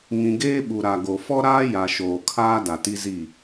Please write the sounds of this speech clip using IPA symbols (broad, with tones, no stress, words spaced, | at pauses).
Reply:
ŋĩ˨ɡeː˦ ɓu˨ɾa˨ɡo˨ fɔ˦ɾaː˦ ja˨ʃoː˨kʰaː˦ da˨ti˦zi˦˨